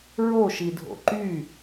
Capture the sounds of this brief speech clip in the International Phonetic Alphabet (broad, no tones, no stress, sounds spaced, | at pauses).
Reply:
ɹ o ʃ i dʱ o̰ ǃ y